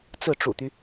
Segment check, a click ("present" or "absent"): absent